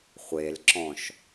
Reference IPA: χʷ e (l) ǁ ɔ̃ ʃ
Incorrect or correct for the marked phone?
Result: correct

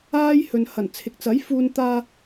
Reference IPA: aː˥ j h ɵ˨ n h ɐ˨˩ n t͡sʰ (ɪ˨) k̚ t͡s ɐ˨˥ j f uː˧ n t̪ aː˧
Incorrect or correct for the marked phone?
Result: correct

